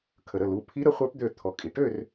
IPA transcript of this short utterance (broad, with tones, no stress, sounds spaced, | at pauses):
kʰ ə˩ ɾ ə˩˧˩ l u˩˧˩ pʰ i˧˥ ɾ ə˩˥ χʷ ə˞˧˥ p d̪ ø˧˩ t̪ʰ ɔ˩ kʼ i˩ ʈ ø˥˨ r